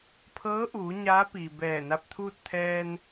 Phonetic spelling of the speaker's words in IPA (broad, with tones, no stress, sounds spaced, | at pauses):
pʰ ɤː˧˥ ʔ uː˩˧ ɲ aː˧˥ p iː˩ b ɛː˧˩ n a˧ p̚ t̪ʰ uː˥˨ t̚ t̪ʰ ɛː˧ n